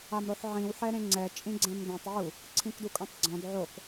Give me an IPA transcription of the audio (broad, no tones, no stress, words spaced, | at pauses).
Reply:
amɾoħʕĩw ħɛɾẽŋ͡ǀɛ t͡ʃʼĩɡ͡ǀɛ̃mdɛ̃tˤ wu | ǀʰĩkdukʼõtˤɡ͡ǀɔ̃d ʕok